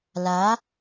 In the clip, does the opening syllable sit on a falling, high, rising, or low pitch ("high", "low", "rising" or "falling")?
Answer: rising